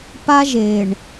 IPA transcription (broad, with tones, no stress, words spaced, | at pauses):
pa˦ʒe˨ɳ